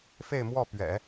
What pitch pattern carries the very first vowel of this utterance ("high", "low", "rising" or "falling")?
falling